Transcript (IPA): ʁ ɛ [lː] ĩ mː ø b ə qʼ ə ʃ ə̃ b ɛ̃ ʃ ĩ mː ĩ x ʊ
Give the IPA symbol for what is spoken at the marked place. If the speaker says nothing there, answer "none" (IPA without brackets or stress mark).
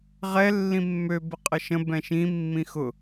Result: lː